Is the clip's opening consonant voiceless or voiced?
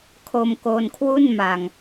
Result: voiceless